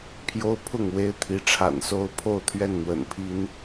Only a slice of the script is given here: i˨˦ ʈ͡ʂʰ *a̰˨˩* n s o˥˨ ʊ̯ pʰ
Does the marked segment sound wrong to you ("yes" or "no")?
no